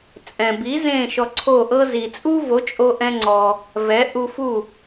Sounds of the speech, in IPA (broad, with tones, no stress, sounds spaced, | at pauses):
t͡sʼ ɛ̃˩ b i˩˥ z ẽ˥˩ ʃ ɔ˧ ǀʰ o˥˩ ʔ ɤ˥ z i˩ t͡sʼ u˥ v o˩˥ t͡ʃʼ o˧ ʔ ɛ̃˧ ŋ͡ǀ ɔ˩ | v ɛ˩˥ ʔ u˧ f u˥˩